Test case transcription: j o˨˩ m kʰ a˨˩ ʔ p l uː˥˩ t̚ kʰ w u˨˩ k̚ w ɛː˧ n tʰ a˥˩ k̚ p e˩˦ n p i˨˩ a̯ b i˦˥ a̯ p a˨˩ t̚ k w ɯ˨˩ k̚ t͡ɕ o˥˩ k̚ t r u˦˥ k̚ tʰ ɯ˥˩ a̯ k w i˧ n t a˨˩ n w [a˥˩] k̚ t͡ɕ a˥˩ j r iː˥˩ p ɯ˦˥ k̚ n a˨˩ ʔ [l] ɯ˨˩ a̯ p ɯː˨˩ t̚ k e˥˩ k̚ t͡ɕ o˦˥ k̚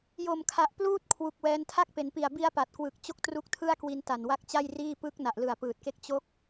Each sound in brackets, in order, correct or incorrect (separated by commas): incorrect, correct